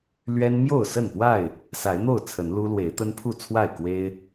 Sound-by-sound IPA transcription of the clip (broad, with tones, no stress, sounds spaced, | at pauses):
l ɥ ɛ˦ n m j o˥˨ ʊ̯ s ə˥˨ n p w a˥˨ ɪ̯ | s a˨˦ ɪ̯ n̪ o˥˨ ʊ̯ t͡sʰ ə˨˦ n l u˦ l w e˨˦ ɪ̯ t̪ ə˦ n pʰ u˥˨ t͡sʰ w a˥˨ ɪ̯ k w e˦ ɪ̯